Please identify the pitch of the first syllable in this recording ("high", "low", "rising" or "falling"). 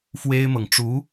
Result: high